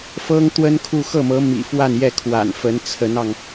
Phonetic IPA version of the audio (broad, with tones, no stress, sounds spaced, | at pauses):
f ɤ˥ ŋ t̪ w ə˥ n kʰ u˥˧ x ɤ˥˩ m ɤ˧˥ m ḭ˨˩ f w a˥˧ n j ɛ˥˩ kʰ w a̰˨˩ n f ə˧˥ n t͡sʰ ə˧˥ n ɑ˧ ŋ